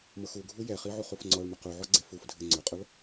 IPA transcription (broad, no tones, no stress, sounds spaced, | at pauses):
m ɤ x u ɡʱ u j ɛ χ i ʕ u χ u f ŋ͡ǀ ɔ ɭ m ɘ q u ʕ ɔ ɡ͡ǀ e f u f dʱ ɘ ŋ͡ǀ ɵ qʼ ɤ ɭ